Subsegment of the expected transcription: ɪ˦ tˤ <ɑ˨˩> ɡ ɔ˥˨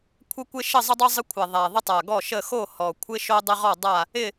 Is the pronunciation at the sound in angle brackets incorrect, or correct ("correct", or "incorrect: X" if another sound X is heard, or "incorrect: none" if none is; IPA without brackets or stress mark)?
incorrect: a˨˩